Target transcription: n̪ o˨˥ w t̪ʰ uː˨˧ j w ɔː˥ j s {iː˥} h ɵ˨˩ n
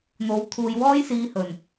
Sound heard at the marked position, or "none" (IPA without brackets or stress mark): iː˧